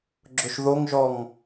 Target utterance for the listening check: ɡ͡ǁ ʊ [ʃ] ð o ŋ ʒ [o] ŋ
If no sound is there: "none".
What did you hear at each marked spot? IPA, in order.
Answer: ʃ, ɔ

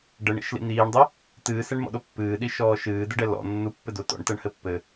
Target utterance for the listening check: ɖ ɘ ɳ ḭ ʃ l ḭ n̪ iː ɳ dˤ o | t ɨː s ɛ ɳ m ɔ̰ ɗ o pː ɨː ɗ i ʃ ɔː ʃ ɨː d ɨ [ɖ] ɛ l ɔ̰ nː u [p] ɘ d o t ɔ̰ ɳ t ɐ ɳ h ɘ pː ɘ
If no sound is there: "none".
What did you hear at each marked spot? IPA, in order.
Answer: ɖ, pː

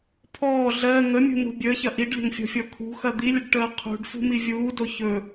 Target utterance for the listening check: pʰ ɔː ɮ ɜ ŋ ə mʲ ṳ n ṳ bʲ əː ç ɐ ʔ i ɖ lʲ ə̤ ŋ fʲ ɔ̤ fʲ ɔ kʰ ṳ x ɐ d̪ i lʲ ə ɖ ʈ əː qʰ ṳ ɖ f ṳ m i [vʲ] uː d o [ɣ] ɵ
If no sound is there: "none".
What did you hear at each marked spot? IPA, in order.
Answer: vʲ, ç

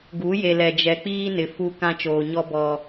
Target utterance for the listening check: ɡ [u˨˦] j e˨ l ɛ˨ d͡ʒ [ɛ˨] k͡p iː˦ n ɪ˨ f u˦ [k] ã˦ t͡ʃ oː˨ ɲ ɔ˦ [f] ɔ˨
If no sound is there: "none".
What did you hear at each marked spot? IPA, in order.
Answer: u˨˦, ɛ˨, k, b

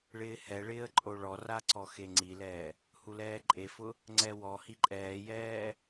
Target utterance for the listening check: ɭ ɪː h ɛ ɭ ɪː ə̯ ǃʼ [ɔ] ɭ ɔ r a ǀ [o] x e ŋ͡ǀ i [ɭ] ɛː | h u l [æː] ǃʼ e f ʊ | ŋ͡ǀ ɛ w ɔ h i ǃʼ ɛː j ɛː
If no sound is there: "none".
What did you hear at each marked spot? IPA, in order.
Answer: o, ɔ, l, ɛː

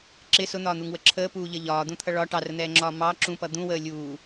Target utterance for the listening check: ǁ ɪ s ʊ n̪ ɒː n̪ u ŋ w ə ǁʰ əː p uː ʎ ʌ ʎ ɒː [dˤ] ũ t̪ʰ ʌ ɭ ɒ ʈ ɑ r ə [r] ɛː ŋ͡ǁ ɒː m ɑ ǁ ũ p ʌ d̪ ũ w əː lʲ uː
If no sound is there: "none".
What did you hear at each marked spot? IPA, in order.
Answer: d̪, n̪

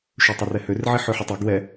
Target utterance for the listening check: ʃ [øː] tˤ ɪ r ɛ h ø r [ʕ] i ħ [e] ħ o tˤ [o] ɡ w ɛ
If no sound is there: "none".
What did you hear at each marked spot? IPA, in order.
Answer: ø, ʕ, ø, o

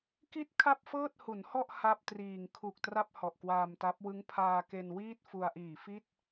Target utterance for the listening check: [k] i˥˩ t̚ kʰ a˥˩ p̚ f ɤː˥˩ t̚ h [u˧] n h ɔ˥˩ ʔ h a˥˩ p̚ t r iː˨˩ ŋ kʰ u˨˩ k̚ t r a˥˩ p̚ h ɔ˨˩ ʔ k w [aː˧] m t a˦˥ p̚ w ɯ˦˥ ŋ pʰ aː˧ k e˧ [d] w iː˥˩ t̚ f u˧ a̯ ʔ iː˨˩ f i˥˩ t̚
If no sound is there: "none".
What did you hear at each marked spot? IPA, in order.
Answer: k, u˩˦, aː˧, n

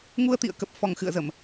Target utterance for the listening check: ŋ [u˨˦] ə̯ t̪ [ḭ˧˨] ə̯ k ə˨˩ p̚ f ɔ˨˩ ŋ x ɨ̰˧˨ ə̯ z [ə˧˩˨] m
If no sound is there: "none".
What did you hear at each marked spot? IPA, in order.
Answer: u˧, ḭ˧˨, ə˧˩˨

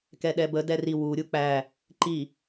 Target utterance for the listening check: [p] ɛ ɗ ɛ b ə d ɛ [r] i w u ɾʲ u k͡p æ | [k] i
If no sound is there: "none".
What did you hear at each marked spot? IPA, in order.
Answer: k, r, ǃ

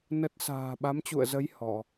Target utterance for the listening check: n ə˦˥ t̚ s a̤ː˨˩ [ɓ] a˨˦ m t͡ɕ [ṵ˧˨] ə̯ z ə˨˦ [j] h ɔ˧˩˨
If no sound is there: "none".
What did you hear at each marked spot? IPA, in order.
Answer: ɓ, ṵ˧˨, j

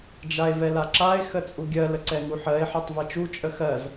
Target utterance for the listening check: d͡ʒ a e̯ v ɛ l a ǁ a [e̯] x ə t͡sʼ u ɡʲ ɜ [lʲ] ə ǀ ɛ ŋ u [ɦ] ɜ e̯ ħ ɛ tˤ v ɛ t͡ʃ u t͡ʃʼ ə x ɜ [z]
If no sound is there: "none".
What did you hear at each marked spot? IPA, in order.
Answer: e̯, l, ħ, z

